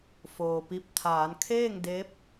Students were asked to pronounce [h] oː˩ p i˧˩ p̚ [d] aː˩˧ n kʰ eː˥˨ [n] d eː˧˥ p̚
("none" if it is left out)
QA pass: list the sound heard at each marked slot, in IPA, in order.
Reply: f, t̪ʰ, ŋ

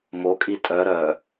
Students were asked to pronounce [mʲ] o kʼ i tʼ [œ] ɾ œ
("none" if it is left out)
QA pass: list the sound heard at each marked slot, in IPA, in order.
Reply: m, œ

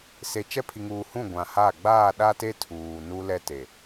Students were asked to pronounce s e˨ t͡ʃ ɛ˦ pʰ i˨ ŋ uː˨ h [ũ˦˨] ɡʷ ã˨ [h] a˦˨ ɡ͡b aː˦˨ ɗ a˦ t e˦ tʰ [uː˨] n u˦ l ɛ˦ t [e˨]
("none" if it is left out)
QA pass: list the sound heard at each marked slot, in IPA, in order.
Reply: ũ˦˨, h, uː˨, e˨

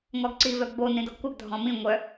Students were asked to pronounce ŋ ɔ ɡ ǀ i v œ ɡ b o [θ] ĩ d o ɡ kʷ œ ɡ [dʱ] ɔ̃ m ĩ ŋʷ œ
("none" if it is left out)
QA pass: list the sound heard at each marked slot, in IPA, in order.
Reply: n, dʱ

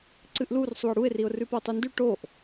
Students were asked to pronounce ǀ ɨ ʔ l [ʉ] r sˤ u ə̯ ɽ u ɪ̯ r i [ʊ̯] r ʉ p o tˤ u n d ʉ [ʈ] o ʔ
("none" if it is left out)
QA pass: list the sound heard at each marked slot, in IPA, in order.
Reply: u, ʊ̯, ʈ

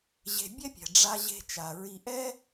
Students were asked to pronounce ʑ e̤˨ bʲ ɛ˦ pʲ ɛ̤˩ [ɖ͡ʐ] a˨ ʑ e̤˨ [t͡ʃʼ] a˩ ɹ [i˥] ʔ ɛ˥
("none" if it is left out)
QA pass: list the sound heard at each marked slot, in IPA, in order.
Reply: ɖ͡ʐ, t͡ʃ, i˨

